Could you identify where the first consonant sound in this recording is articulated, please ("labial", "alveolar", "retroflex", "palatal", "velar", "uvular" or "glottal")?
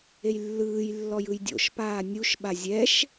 palatal